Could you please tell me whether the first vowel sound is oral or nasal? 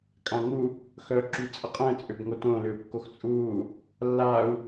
nasal